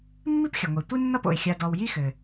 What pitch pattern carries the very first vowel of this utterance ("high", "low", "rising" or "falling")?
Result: high